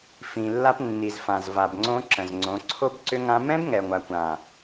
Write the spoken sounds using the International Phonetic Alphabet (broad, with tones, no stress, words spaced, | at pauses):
fĩ˨lːa˧p nːi˨zfã˨zva˨bŋ͡ǀõ˧ ǁə̃˨zŋ͡ǀõ˨˦ ǀʰo˧bǀʏ˧ŋã˧ mɛ̃˦bŋɛ˨ŋʷa˨ kʷã˨